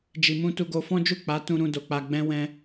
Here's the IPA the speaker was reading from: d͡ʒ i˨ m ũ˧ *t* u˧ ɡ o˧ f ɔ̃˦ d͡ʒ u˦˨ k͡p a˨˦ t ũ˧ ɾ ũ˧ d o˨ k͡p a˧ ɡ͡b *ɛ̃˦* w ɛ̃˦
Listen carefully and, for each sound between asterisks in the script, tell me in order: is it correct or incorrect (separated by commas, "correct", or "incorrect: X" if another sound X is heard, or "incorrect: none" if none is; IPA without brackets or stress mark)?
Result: correct, correct